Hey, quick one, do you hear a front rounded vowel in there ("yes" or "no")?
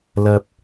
no